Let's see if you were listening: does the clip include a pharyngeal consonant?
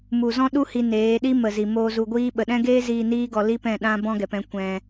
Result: no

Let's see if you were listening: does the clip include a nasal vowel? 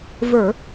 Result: no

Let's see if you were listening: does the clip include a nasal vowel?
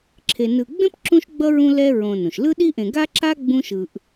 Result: yes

